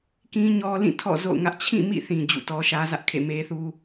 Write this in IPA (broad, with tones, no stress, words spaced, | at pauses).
kĩ˦ɲɔ˦lĩ˦˨tʰɔ̰˦˨ zo̰˦˨ʊ̯ŋä˦ʔ t͡ɕʰĩ˦˨mḭ˦˨θĩ˨ d͡ʑṵ˦˨tɔ˦ʃä˦zä˦ʔ kʰḛ˦˨me˦θu˦